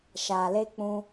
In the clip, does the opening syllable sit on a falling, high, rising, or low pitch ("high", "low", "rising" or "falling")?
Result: low